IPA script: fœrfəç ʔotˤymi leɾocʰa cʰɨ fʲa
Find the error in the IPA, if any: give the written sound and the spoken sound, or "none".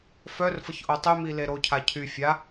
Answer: ɨ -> y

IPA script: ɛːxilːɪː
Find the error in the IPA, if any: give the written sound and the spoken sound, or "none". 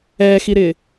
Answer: lː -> ɾ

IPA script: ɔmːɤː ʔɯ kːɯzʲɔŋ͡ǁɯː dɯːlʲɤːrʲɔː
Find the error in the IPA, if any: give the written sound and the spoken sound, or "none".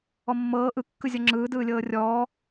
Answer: none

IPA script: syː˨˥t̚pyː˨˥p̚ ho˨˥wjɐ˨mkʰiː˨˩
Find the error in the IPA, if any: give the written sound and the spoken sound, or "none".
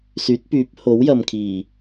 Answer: none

